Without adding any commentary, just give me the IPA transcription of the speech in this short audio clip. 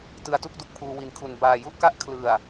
tɯ˧a̯tu˥˩k̚du˦˥k̚pʰuː˧ wi˨˩nkʰu˨˩n baː˨˩ju˥˩ʔka˦˥ʔ kʰlɯ˨˩a̯

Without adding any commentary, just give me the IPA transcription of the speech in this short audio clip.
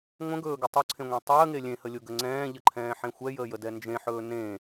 ŋʷə̃ɡɵːɡɘ tˤʊǀʰẽŋʷẽ tˤəːŋe lʲẽhəlʲʊɡə ŋ͡ǀɛ̃ːʎəǃʰɛ̃ːħẽ xʷɛjəːjədɛ nd͡ʒẽħɵː nẽ

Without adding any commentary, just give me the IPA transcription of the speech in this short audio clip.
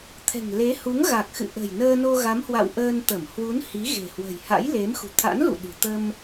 t̪ʰɛ̤˨˩ŋle˨˦ hu˨˦ŋɣa˨˩k̚xɨ̰˧˨ʔə̤˨˩j nəː˧no˧ɣa˨˦mhwa̰˧˨w ʔəː˧nt̪ə˧˩m hwu˨˦n hi˨˦ɣe̤˨˩ hwə̤˨˩jha̰˧˥jle˨˦m xṳ˨˩t̪ʰa̰˧˥n lṵ˧˨ɗɨ̤˨˩t̪ə˧m

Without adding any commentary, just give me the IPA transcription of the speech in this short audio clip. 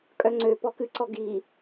kʼœŋ͡ǀø pɔkɨǀɔ ɡi

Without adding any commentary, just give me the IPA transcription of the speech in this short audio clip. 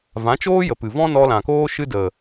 vã˨˦t͡ʃoː˦jə˨pɨ˨ vɔ̃˦nɔ˧lã˨koː˦ ʃɨ˦də˨

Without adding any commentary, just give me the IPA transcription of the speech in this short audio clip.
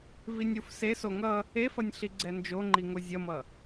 vinʲufseso ŋʌ | efʌnʲ ɬiɡ͡ǀɛnd͡ʒoŋ͡ǃi ŋozʲʌmʌ

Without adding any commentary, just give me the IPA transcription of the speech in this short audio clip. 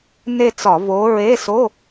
ne˥˧t͡sɒ˧˩˧ vo˨˥ ɹe˧˥˧so˧˥˧

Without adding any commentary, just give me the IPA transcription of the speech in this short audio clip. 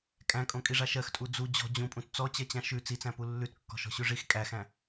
kʼæ̃kʼõkʼiʐa ʃɜxtʼu d͡zu d͡ʑɔ̤ d͡ʑũpʼũt t͡sɔt͡ɕɜt͡ɕã ʃʉ t͡sit͡sæ̃pu lːʉtkːɔ̤ʃɔ̤ɕʉ ʐix kʼæxæ̃

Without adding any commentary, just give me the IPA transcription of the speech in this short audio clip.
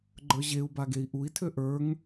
ɡ͡ǃə˞ʑeu̯ba ɡei̯ʔui̯tʰø ʔə˞ŋ

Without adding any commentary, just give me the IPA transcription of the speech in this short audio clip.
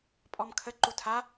pʼɔmkʰə ǃutʰa

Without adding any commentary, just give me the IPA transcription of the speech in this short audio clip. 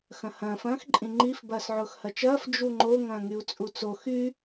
xɐ̃hɐ̃ːf ɐ̃ːxǃʼĩŋ͡ǃif bɐːsʕʊːxhɐt͡ʃɐːf d͡ʒuŋ͡ǃo ŋɐ̃ːŋyu̯t͡sʼut͡so xy

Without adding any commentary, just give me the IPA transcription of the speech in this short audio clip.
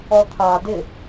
ɔt̪ʰɑdɪ

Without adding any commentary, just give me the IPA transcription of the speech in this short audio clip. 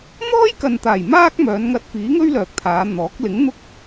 n̪ɔː˥jkɐ˨nt̪aː˨˩j maː˥k̚mœː˨˧nŋɐ˧t̚fiː˨˥ ŋɵ˥ɥlœː˨k̚t̪ʰaː˨˧ n̪ɔː˨˥k̚ lɪ˨˥ŋ n̪ʊ˥k̚

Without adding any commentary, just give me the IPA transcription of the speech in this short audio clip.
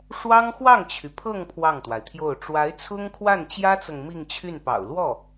ʂwɑ˥ŋxwɑ˥˩ŋt͡ɕʰy˩ pʰɤ˥˧ŋ pʰwɑ˥˩ŋt̪wa˩ɪ̯t̪ʰjo˥˩ʊ̯ ʈ͡ʂwa˧˥ɪ̯ t͡sʰʊ˥ŋkʰwa˥˩nt͡ɕjä˥t͡sɤ˨ŋ mi˥˧ŋt͡ɕʰy˥˩npɑ̰˨˩ʊ̯ lwɔ˥˩

